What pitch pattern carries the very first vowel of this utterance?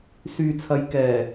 low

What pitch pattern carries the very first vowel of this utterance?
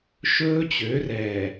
high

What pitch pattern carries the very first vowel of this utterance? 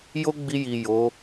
high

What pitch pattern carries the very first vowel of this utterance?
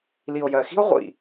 low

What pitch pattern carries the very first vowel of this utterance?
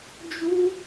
high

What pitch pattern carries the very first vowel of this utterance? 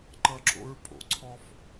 high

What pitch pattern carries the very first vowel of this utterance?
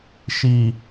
low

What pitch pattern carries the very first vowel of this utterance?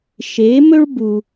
rising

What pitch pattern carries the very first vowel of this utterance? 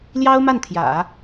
high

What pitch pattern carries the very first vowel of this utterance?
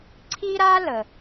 high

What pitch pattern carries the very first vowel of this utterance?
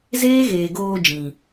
high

